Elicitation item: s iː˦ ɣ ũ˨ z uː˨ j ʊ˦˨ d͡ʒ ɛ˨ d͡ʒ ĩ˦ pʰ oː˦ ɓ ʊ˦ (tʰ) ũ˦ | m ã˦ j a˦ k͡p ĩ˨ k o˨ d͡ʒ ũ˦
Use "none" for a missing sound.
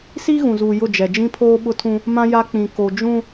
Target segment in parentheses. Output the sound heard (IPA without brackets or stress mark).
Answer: tʰ